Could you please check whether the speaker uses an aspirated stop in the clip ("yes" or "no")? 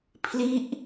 yes